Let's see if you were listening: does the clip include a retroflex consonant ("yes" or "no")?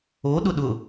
no